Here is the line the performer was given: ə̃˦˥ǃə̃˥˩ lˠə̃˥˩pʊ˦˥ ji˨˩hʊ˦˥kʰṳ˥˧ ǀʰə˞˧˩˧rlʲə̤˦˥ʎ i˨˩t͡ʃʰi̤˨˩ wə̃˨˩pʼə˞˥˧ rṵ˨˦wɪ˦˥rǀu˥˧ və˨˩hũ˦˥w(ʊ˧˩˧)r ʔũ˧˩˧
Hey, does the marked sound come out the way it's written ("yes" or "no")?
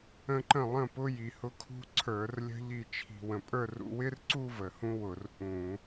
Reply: yes